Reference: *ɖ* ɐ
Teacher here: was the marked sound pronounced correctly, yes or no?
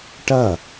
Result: no